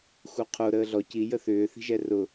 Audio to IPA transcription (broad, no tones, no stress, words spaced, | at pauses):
xuqʰo ɾəːɮɔ ci jəθʏː θi̤ʒɛrʊ